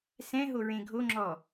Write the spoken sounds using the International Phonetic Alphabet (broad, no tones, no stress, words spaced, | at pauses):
sɛ̃ɦo ɹẽɡʱoŋ͡ǁɔ